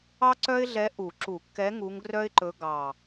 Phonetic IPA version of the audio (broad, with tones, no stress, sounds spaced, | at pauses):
ɑ˥ ǀ œ˥ ɪ̯ ɮ ɛ˧˥ ʔ u˨˩˦ ǁ u˨˩˦ kː ɛ˧˥ ŋ u˧˥ ŋ ɡ r œ˥ ɪ̯ ǃ ɵ˧˥ ɡ ɑ˨˩